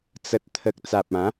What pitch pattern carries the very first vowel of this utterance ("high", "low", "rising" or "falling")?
low